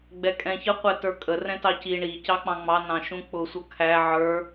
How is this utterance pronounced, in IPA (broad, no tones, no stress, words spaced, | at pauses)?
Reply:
ɡ͡bɛkʼɛ̃ çə qʷɛtə˞kʼə rɛ̃tɑci ɳi cɑk͡pɑ̃ŋ͡mɑ nɑ̃ʃũk͡pʊ sʷʌkʰæ ʕə˞